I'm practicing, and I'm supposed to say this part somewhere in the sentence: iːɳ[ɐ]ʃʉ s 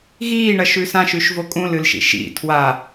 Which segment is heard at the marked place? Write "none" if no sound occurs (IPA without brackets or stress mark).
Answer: ɐ